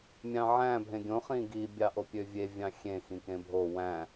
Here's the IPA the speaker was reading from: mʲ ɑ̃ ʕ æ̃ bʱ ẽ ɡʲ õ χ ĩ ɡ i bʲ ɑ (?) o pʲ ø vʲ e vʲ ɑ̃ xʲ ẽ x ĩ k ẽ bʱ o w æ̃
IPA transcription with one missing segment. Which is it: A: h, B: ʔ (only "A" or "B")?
B